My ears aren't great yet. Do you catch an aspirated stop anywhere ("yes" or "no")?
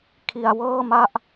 yes